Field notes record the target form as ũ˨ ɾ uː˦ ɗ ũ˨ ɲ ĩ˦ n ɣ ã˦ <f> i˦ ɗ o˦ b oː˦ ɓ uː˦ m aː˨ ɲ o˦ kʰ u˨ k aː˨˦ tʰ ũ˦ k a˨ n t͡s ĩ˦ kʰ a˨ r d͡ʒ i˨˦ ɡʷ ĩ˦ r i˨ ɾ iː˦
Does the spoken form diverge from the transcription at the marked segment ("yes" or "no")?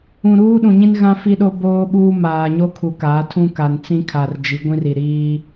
no